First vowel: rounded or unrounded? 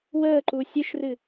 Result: unrounded